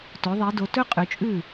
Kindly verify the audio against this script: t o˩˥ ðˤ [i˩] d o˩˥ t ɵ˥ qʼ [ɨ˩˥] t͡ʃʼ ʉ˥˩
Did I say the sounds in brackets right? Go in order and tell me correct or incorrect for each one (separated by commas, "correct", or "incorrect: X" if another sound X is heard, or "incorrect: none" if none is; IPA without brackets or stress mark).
incorrect: i˩˥, incorrect: ʉ˩˥